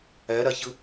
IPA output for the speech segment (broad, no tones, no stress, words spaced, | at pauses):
æɾaçə